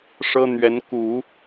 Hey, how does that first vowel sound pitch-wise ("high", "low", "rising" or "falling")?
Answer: high